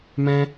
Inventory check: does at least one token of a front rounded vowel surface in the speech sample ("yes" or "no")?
no